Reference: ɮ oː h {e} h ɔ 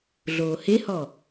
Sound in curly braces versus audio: correct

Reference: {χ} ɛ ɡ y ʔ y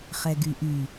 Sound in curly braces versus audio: correct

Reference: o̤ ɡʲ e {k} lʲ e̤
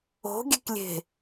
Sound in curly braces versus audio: correct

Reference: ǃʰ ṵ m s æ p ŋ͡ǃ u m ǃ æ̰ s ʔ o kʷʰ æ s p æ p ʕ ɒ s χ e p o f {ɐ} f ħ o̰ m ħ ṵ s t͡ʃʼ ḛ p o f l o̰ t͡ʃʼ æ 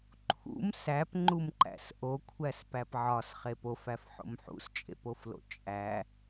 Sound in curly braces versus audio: incorrect: æ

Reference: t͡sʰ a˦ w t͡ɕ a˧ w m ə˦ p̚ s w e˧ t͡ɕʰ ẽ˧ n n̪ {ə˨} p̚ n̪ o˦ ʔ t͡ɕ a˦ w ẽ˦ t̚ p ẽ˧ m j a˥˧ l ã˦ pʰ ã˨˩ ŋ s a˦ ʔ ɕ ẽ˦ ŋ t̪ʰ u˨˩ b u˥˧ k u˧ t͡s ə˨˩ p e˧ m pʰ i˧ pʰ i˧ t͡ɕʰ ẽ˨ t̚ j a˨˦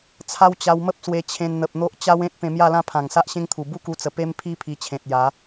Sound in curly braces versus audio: correct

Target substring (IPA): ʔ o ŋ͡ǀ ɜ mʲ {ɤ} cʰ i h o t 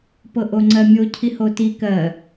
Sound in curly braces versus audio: incorrect: o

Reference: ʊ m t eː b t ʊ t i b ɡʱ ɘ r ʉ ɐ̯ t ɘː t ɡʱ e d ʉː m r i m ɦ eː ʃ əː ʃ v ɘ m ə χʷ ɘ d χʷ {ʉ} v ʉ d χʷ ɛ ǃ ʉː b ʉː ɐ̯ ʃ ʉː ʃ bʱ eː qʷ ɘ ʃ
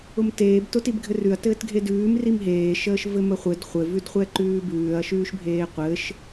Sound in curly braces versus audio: incorrect: ɘ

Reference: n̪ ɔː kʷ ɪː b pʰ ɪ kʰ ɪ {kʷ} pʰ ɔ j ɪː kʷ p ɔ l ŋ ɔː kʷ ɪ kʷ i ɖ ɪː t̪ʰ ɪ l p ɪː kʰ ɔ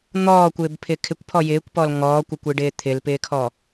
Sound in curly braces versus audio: correct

